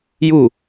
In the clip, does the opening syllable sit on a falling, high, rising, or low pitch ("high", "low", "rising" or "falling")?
falling